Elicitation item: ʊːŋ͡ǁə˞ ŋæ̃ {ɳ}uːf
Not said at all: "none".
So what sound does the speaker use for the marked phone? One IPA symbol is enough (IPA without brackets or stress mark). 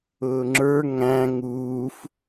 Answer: ŋ